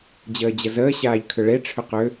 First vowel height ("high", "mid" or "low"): mid